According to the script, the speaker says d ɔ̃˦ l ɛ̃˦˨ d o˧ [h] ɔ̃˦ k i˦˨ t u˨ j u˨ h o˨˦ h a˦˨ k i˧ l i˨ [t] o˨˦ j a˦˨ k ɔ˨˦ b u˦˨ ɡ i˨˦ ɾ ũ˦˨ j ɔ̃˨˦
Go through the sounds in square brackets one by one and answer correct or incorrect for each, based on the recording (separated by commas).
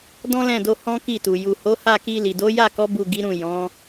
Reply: correct, incorrect